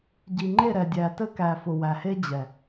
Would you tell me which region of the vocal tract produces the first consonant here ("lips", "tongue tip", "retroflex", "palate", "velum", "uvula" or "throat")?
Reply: palate